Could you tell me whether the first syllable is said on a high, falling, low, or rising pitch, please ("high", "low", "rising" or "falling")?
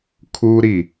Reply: high